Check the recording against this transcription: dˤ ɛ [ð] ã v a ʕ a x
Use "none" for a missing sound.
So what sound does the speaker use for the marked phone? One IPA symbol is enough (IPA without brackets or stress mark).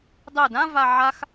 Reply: d